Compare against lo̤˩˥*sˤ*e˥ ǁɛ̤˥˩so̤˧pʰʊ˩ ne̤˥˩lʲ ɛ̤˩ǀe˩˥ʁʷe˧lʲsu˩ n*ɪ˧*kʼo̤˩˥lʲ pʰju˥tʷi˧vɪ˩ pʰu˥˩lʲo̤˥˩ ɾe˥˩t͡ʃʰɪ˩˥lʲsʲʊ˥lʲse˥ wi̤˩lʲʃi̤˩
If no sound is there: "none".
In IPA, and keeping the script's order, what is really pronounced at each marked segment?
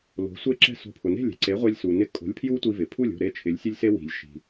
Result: sʷ, ɪ˧

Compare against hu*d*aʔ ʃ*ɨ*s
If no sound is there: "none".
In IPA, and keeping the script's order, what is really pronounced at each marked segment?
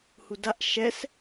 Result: d, ɛ

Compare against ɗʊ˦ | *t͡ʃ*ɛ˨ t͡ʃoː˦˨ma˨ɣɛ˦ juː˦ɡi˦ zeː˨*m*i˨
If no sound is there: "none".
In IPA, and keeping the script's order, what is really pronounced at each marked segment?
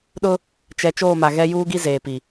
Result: t͡ʃ, p

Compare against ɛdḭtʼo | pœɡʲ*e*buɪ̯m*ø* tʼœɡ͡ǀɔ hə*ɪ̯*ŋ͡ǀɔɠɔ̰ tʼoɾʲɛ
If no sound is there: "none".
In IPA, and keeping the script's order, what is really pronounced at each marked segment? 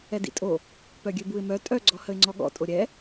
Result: ø, œ, ɪ̯

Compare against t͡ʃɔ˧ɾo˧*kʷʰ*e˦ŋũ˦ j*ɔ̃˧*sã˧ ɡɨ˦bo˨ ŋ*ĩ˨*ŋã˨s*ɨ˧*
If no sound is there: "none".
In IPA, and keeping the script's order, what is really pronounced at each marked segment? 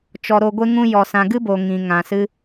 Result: ɡʷ, ɔ˧, ĩ˨, ɨ˧

